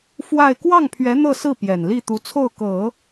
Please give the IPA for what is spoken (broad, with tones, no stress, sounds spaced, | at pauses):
f w a˥˧ ɪ̯ k w ɑ˥˩ ŋ pʰ ɥ ɛ˧˥ n̪ ɤ˥˧ s ɹ̩˥˩ p j ɛ˨˩ n l i˥˩ t̪ u˧˥ t͡sʰ o˥˩ ʊ̯ k ɤ˨˩˦